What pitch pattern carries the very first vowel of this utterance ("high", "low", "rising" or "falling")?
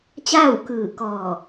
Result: falling